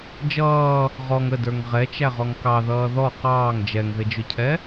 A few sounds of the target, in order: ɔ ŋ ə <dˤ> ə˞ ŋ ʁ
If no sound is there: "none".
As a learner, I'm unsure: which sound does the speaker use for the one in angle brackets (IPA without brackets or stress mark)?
d